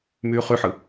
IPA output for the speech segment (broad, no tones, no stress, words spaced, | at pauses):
myːχyħɯ